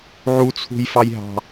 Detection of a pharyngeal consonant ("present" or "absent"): present